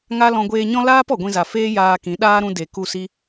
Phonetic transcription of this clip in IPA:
ŋa˦lɔ̃˧ ɡʷeː˧ɲɔ̃˦ laː˦p ɔ˨ɡʷĩ˧za˨feː˦ jaː˧ kĩ˨˦ ɗaː˦ ɾũ˧ de˨ku˦˨ si˦

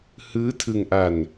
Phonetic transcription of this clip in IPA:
hɯː˦˥tʰɯ˧ŋʔa˧n

